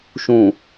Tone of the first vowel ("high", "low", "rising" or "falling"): low